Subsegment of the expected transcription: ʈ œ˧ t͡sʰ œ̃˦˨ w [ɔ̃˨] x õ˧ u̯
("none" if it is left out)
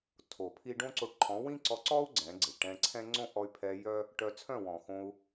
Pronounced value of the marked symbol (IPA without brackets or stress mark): ɔ̃˨